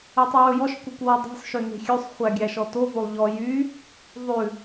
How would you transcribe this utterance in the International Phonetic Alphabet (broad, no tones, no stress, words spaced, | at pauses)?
ɵtˤuwɵjɔʃ kʷœkʷwɔdˤe̤sˤ ʃøne̤xʲøsˤ χʷæɡʲæʃɔto volˠʎɔ jy | ðˤʉ